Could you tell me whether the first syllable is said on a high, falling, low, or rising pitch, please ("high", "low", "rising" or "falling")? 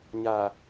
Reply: low